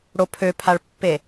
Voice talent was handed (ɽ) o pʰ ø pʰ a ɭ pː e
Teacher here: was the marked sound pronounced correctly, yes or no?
yes